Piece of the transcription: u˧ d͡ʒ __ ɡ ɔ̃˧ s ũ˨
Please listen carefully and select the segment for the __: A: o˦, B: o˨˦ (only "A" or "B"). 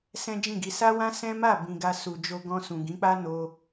A